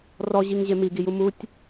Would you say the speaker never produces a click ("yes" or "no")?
yes